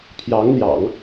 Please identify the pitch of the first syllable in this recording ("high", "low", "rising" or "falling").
rising